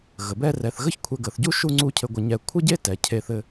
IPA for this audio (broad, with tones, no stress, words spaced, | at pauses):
ɣə˩˧bɛ˥rɛ˧θ ɣə˥çkʷʰɛ˧ɡə˩˧θɟu˥ ʃu˥˧ŋ͡ǀu˥˧cʰɘ˧ɡʷə˧ ɲɛ˧˩kʷʰə˥ɟe˥tɛ˩˧ cʰe˧θɘ˧